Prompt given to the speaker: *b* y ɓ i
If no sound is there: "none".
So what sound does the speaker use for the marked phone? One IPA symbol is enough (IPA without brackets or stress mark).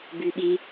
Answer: b